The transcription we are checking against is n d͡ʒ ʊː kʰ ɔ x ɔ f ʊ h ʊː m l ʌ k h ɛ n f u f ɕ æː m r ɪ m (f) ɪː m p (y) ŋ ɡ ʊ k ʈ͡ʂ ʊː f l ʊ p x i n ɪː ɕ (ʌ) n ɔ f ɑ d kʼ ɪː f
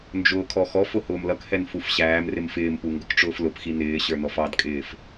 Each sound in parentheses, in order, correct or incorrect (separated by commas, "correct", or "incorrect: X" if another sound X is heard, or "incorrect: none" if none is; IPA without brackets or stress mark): correct, incorrect: u, incorrect: ə˞